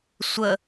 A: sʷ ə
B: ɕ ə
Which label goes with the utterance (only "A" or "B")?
A